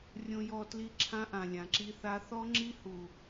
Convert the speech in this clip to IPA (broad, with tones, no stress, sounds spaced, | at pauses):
rʲ õ˧ j ɔ˧ t l i˧ ǁʰ ã˦ ʔ ã˨ lʲ ã˨ ǁ i˦ θ a˦ θ ɔ˦ ŋ͡ǁ i˦ h u˨